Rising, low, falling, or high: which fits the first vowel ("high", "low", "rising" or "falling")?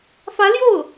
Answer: rising